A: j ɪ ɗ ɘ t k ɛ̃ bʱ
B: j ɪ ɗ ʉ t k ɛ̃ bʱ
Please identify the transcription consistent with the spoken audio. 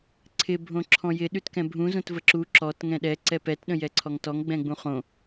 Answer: B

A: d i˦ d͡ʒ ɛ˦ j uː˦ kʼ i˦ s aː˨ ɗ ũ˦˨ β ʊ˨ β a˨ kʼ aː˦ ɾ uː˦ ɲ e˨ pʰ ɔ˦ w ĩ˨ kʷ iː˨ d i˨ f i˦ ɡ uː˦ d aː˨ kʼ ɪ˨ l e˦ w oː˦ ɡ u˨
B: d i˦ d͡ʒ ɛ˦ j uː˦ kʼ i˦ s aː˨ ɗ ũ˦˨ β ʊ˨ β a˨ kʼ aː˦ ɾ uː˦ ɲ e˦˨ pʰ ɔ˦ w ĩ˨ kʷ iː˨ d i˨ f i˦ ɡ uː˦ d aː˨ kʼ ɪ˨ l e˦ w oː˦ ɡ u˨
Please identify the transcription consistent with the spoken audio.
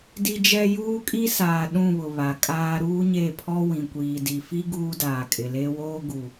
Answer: B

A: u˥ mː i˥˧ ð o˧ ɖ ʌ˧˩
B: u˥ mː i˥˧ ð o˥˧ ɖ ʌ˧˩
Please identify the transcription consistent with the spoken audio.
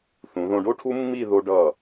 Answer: A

